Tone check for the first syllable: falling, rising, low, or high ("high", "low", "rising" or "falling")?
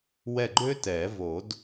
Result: falling